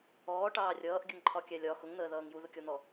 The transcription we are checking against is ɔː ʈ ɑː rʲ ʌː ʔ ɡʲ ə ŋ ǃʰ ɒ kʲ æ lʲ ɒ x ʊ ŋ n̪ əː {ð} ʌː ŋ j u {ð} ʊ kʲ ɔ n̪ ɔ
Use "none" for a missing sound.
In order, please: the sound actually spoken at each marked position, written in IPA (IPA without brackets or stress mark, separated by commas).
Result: ð, ð